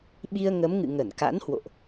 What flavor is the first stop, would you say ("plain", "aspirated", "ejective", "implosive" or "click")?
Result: implosive